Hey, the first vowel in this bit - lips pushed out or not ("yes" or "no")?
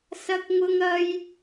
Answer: no